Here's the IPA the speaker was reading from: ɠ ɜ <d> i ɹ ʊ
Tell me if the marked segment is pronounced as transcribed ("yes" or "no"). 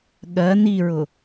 no